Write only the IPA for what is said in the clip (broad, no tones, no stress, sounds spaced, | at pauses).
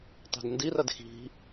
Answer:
tˤ e̤ d n d i r ɐ d x i̤